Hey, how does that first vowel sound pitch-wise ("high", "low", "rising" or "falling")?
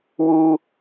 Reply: high